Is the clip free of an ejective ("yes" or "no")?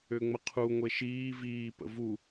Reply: yes